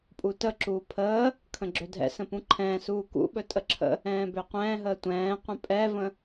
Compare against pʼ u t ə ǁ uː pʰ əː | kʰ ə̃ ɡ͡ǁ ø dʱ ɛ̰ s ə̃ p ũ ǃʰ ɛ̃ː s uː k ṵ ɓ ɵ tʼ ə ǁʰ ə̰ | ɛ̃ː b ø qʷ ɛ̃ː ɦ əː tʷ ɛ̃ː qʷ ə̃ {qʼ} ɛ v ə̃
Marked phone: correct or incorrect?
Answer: incorrect